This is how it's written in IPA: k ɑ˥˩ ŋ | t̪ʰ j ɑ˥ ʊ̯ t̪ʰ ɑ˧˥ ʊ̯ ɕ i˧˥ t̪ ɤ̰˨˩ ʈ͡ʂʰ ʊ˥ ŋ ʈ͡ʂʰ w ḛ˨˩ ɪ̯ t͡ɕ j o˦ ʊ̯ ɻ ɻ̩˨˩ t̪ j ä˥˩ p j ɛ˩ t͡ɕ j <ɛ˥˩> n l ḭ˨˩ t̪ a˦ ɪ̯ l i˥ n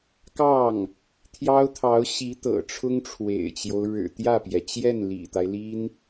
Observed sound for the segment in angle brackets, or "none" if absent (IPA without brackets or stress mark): ɛ˥˩